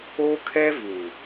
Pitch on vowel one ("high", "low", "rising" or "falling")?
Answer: high